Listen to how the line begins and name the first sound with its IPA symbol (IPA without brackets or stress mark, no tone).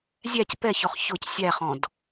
zʲ